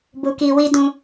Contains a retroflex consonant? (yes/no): no